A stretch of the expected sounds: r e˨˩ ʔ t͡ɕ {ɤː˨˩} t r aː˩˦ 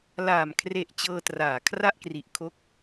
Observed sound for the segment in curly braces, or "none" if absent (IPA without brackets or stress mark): ɤː˧